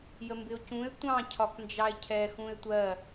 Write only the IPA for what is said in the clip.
j ə m b ɪ o̯ c ũ e̯ tʷ ɑ̃ cʰ ɒ k n d͡ʒ ɑ e̯ cʰ ɛ x ũ e̯ tʷ ɜ

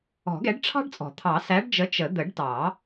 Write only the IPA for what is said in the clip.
ɔ̤˨˩˦ ɡ ɛ˨˥ ɖ ʈ͡ʂʰ ɑ̤˥ ɖ t͡sʼ ɔ̤˨˩˦ t̪ʰ ɑ˨˩˦ s æ˨˥ ɖ d͡ʒ ə˨˥ t͡ʃ ə˨˩˦ d̪ ə˨˩˦ ɖ t ɑ˨˩˦

